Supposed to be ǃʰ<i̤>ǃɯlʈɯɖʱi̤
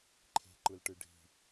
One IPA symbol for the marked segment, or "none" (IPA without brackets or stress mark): e̤